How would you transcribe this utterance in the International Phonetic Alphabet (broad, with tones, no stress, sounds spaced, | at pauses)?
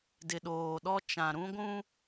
d ɪ˨ ɗ oː˨ ɗ ɔ˦ t͡ʃ ã˨ ɾ ũ˦ ɡʷ ũ˦